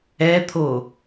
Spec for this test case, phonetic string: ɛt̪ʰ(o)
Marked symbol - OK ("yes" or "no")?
yes